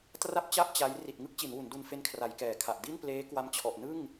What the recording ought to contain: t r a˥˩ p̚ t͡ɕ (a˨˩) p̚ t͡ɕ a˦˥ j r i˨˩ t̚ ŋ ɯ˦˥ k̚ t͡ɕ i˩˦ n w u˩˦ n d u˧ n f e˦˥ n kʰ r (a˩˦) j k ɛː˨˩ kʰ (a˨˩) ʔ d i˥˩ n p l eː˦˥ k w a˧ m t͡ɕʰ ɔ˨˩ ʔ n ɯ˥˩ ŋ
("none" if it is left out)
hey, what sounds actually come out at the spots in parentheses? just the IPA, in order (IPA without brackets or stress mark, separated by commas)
a˥˩, a˩˦, a˨˩